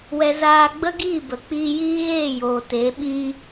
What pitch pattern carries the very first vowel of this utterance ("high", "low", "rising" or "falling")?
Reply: high